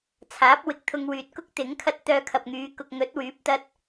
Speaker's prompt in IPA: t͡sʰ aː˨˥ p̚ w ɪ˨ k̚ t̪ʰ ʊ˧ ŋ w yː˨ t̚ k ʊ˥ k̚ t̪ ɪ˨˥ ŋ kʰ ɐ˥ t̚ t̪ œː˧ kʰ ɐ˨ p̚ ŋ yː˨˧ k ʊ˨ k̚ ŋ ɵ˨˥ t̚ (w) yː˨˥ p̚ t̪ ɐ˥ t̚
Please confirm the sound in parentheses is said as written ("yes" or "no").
yes